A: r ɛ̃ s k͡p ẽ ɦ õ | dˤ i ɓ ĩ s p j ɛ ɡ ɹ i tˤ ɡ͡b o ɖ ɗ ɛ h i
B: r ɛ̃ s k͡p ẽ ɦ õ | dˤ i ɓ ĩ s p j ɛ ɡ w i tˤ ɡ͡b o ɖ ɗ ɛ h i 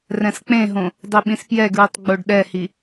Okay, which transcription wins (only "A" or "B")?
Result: A